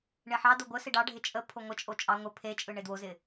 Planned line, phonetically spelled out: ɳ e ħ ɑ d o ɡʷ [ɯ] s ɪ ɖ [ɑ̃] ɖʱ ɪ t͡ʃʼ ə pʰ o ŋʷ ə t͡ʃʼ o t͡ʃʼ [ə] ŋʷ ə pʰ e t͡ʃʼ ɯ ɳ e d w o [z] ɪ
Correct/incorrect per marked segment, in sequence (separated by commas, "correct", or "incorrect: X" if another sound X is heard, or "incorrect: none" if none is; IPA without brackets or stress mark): incorrect: ə, incorrect: ɑ, incorrect: ɑ, correct